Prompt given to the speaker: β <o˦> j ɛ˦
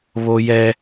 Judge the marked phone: correct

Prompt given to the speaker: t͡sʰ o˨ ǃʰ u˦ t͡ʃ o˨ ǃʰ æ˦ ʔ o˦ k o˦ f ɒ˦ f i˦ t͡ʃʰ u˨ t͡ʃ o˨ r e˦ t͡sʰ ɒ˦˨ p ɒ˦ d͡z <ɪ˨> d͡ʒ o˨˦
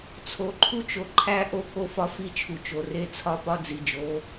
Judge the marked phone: incorrect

